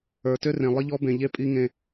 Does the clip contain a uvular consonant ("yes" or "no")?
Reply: no